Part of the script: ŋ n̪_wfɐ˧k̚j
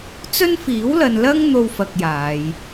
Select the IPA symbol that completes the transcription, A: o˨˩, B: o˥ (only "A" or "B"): B